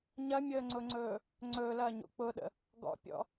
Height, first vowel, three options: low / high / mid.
low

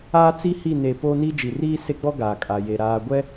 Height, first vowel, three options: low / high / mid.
low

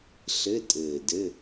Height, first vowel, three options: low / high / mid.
mid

